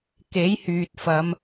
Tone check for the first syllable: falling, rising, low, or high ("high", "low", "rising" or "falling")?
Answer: rising